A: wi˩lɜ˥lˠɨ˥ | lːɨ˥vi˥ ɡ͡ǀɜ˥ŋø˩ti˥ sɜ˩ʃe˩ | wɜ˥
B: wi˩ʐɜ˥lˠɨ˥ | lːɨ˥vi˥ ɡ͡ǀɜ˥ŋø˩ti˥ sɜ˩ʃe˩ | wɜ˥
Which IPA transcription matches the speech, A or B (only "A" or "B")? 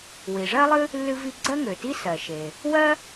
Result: B